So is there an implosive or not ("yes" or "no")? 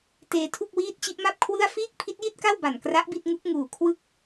no